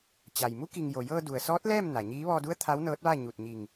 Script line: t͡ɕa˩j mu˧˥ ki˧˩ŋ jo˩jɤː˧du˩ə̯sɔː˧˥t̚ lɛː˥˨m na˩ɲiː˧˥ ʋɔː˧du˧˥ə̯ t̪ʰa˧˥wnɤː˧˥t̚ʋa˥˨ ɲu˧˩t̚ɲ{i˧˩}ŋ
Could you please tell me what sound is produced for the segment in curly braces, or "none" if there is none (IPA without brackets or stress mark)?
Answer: i˧˩